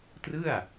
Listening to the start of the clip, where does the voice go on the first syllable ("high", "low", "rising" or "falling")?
falling